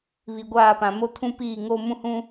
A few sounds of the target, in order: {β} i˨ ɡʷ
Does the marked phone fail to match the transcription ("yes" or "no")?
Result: no